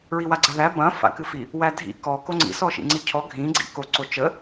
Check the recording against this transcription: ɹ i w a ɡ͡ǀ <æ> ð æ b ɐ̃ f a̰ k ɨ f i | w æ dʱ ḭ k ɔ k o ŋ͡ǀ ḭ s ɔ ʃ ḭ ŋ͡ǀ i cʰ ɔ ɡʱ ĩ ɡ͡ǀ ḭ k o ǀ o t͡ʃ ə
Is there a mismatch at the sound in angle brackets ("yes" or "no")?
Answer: yes